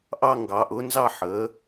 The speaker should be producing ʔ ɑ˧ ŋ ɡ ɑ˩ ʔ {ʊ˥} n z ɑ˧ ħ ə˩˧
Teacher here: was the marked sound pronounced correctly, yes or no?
no